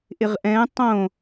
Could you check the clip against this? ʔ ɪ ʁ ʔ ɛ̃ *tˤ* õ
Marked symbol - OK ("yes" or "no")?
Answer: yes